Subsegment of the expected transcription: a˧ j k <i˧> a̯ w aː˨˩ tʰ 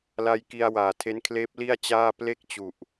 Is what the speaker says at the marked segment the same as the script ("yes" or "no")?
yes